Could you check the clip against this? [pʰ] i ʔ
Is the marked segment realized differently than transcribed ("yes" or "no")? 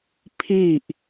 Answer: no